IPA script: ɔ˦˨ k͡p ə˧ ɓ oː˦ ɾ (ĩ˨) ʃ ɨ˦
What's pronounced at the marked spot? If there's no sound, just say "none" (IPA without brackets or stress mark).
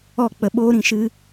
ĩ˨